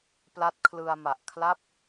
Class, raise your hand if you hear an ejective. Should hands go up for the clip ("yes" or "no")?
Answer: no